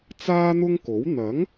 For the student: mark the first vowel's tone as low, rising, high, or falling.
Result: high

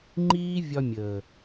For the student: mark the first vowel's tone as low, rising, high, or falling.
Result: high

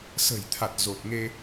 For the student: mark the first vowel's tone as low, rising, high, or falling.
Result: low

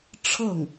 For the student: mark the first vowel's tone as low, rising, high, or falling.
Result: falling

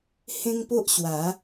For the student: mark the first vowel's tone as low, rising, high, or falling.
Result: high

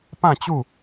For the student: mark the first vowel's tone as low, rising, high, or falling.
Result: falling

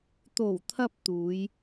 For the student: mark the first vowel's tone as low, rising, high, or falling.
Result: low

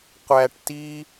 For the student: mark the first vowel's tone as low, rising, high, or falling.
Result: low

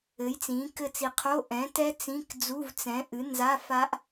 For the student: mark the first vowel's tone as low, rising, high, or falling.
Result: rising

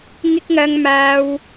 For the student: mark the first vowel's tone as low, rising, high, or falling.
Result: high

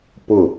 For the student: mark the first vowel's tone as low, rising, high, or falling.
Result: falling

